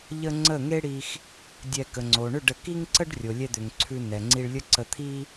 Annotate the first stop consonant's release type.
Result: click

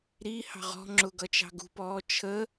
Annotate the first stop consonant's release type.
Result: click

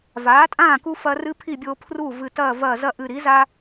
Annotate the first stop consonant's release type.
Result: ejective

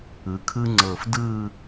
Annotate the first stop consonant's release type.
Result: aspirated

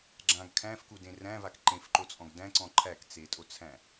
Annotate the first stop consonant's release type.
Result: click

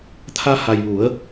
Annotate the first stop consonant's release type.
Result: aspirated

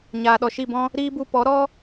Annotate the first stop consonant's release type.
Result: implosive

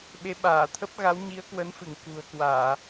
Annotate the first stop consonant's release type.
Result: implosive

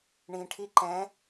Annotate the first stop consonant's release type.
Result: aspirated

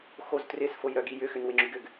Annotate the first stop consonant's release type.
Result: plain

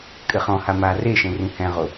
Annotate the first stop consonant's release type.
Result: ejective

